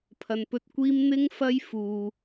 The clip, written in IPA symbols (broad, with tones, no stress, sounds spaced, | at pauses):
pʰ ɐ˨ n p ɵ˧ t̚ kʷ iː˥ m n̪ ɪ˥ ŋ f ɐ˥ j f uː˨